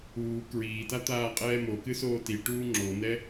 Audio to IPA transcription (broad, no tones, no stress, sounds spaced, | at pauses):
uː k ɹ iː t a t̪ aː qʼ ɛː m o k ɨ s oː t i ʈ uː ŋ͡ǁ o n ɛ